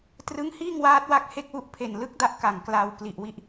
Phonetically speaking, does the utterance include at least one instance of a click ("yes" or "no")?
no